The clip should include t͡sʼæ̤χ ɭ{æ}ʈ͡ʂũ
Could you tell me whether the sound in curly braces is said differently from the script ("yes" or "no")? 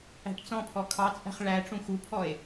no